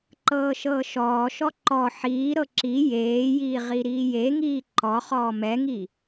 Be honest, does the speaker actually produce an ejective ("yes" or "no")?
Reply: no